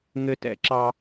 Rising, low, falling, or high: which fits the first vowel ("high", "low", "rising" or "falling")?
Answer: high